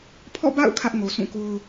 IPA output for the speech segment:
pʰ ɔ̰˦˨ b a̰˦˨ ʊ̯ kʰ ä˦ ʔ ŋ o˨ sʰ ũ˦˨ k o˦ ʊ̯

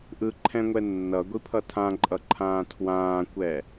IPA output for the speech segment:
ʔ ɯ ǃʰ ɛ̃ ŋʷ ɛ nː ʌ ɡʷ i pʰ ʌ tʰ ã ǃʼ ʌ ǃʰ ãː tʰ w ãː kʷ ɛ

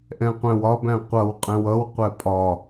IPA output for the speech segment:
ʔ ɛ̃ qʷ æ̃ w ɒ b æ̃ qʷ ʌ w qʼ ɛ̃ w ʌ w qʷ ɛ pʼ ɒ

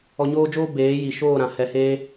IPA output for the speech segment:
ɔ˧ ɲ oː˦ d͡ʒ oː˦ b eː˨˦ j i˨ ʃ oː˦˨ ɾ ã˨ h ɛ˨ h eː˧

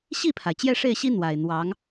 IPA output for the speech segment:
ɕ i˥˩ pʰ a˩ ɪ̯ t͡ɕ j ɛ˥˧ ʂ e˥˩ ɪ̯ ɕ i˥ n̪ w a˨˩ ɪ̯ n̪ w ɑ˧˥ ŋ

